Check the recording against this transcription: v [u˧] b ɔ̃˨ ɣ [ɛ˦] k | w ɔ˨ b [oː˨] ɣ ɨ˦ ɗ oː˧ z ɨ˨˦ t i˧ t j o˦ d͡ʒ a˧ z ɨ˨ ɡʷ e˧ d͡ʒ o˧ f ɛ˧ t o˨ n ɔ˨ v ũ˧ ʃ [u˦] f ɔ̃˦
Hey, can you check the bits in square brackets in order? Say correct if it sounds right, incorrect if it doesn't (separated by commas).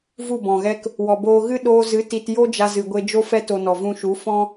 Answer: incorrect, correct, incorrect, incorrect